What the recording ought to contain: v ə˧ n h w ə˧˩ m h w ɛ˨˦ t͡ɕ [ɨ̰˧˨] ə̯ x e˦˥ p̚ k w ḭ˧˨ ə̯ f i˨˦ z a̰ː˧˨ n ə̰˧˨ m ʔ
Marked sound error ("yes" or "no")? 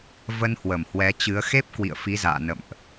yes